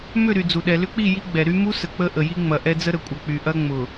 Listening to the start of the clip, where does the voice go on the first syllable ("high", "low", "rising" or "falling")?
falling